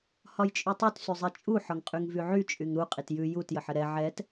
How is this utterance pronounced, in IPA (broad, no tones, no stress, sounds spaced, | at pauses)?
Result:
h ɒ j t͡ʃʼ y tˤ y t s y zˤ i t͡ʃʼ u ħ ɒ ŋ qʼ y ŋ v y ʕ y t͡ʃʼ y ŋ ɾ u qʼ i t j ʉ j u t j ə ħ ə ɾ ɛ ʕ ɛ t